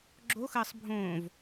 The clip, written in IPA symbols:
ɡ͡ǁ o x ɘː sˤ bʱ õː v

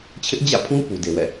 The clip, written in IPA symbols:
t͡ɕʰ ɪ˦ ʔ d͡ʑ ä̰˦˨ pʰ ũ˦ p u˨ d e˨ w ɛ̰˦˨

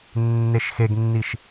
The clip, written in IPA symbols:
nː e ʃ x e ɡ nː i ʃ

